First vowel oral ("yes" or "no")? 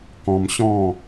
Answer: no